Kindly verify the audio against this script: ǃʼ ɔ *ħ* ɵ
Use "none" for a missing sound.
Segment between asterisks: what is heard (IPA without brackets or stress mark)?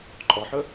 ħ